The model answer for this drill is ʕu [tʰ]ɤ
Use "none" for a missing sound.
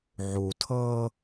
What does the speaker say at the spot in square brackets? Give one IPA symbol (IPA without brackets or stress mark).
tʰ